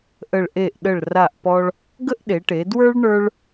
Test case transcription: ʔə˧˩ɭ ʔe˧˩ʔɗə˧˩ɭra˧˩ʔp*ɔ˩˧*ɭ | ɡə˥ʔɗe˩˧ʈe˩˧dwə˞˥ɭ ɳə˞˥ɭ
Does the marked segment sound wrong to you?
yes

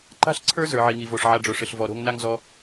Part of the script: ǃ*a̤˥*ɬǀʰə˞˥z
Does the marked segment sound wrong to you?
no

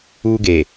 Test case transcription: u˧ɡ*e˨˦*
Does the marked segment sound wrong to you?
yes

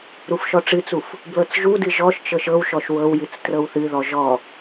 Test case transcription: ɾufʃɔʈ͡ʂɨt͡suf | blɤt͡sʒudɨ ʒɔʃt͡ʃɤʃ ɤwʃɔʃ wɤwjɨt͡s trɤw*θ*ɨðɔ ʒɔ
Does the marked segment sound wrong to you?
no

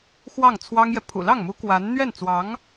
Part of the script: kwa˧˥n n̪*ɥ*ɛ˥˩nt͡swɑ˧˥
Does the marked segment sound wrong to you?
no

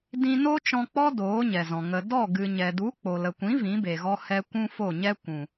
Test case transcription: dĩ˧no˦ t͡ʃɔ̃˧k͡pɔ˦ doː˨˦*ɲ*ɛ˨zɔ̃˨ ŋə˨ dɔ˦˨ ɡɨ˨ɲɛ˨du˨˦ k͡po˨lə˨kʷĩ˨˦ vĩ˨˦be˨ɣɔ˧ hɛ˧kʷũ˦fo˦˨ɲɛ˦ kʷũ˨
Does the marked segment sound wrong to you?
no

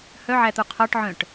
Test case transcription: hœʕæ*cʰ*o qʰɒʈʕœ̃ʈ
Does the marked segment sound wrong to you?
yes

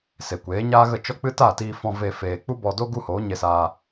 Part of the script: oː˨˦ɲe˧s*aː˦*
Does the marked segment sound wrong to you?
yes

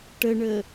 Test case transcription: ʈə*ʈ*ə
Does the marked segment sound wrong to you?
yes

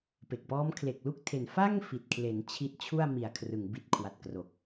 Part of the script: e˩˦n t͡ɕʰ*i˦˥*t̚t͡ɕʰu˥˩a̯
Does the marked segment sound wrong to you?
no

